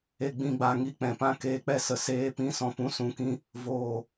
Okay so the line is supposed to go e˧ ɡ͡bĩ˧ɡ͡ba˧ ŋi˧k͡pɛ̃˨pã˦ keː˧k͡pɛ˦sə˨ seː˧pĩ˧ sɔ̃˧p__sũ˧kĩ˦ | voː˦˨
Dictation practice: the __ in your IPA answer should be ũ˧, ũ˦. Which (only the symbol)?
ũ˦